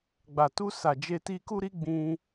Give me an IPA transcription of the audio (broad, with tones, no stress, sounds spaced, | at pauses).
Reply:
ɡ͡b a˨ t u˧ s a˨ d͡ʒ e˧ t i˧ k u˦ ɾ i˦ ɡ͡b ĩ˧